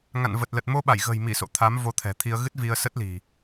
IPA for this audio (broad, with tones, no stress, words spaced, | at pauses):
ŋa̰˧˨nvə˨˩t̚lə˨˩t̚ mo˧ɓa˧˩jɣə̤˨˩jmi˧˩ so̰˧˨t̪ʰa˨˦m vo˧t̪ʰɛ̤˨˩t̪ʰi˧ə̯ ɣɨ˦˥t̚vi˧ə̯sə˦˥t̚li̤˨˩